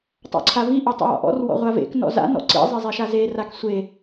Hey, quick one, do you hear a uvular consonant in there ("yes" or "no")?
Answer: yes